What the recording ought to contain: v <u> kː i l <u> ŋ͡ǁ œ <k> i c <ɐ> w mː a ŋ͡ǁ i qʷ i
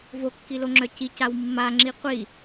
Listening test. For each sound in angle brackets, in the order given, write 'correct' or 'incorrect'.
incorrect: o, incorrect: o, incorrect: c, incorrect: a

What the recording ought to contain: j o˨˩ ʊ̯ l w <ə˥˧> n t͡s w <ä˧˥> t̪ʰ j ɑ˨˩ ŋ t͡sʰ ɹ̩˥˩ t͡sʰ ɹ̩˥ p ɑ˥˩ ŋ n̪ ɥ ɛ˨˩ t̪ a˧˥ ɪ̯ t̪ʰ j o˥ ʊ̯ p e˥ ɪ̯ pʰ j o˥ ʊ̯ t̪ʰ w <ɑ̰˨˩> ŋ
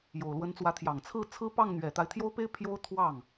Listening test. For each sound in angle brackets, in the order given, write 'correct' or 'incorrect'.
incorrect: ə˧˥, correct, incorrect: ɑ˥˩

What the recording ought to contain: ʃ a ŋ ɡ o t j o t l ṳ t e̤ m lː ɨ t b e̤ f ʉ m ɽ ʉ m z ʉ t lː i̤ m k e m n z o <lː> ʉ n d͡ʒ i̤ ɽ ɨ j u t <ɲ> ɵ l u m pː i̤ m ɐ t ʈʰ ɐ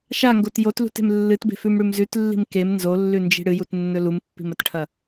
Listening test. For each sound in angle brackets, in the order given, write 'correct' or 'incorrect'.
correct, incorrect: nː

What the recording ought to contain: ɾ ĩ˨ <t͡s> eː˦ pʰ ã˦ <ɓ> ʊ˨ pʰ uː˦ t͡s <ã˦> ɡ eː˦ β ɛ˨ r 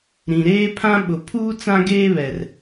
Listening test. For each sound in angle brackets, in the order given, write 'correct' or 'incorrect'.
incorrect: ɾ, correct, correct

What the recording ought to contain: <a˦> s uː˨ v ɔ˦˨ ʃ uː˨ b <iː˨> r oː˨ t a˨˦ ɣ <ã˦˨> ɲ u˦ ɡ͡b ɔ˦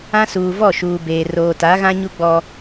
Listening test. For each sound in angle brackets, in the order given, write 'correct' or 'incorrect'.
incorrect: ã˦, incorrect: eː˨, incorrect: ã˦

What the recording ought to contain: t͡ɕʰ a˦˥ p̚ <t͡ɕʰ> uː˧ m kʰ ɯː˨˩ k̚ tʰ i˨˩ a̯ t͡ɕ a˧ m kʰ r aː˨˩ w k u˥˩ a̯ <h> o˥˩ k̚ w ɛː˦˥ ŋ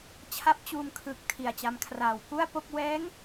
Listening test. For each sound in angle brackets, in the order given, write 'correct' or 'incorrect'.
incorrect: t͡ɕ, incorrect: p

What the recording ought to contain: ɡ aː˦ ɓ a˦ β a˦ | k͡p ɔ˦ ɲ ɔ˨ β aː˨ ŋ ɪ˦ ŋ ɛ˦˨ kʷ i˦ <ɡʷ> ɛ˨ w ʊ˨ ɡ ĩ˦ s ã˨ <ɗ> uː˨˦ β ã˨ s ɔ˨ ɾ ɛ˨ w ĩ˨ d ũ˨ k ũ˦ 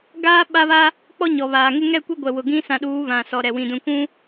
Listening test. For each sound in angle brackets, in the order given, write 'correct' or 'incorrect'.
correct, correct

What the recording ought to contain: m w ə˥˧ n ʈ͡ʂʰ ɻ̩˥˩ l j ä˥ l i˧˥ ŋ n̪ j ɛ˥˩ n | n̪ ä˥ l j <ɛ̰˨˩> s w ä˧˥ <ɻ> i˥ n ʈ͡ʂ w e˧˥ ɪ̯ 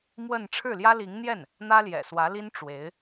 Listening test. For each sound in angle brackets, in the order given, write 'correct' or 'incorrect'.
correct, incorrect: l

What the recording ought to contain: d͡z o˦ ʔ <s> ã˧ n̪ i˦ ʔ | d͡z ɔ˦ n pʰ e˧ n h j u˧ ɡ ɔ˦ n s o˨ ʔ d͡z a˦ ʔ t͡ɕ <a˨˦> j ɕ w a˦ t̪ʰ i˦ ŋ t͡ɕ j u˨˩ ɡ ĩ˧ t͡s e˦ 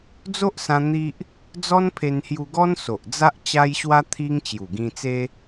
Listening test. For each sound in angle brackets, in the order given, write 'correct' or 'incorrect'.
correct, incorrect: a˦

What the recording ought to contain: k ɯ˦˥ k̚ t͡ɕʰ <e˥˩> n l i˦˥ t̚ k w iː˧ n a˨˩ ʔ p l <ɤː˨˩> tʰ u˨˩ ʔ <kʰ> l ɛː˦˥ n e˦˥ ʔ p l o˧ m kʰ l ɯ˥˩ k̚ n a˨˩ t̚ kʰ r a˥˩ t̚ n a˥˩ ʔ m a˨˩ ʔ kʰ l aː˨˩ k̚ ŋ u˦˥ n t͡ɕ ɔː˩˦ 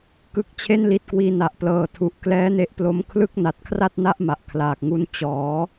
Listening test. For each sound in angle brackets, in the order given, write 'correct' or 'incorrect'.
correct, correct, incorrect: k

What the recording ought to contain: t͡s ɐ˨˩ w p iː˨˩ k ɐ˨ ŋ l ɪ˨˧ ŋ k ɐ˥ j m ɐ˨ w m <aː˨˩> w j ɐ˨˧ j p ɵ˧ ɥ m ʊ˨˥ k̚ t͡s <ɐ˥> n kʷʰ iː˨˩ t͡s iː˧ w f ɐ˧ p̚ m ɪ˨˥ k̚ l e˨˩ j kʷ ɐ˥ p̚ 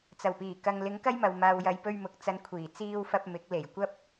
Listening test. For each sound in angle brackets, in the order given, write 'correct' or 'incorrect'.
incorrect: aː˨, incorrect: ɐ˧

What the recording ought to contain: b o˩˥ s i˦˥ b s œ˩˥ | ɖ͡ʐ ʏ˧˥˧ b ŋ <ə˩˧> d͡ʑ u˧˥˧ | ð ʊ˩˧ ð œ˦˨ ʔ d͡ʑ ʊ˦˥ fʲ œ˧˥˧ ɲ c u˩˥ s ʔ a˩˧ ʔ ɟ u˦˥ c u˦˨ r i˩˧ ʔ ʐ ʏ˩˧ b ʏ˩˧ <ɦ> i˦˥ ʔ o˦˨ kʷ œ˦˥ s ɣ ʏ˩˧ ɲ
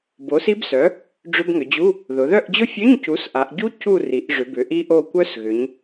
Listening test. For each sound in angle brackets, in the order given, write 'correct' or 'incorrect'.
incorrect: ʏ˩˧, incorrect: ʔ

